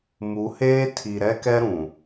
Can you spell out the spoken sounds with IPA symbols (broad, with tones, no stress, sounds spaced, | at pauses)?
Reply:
m u˨˦ h eː˦ tʰ i˨ ɾ ɛ˦ k ɛ˦ ɾ ũ˨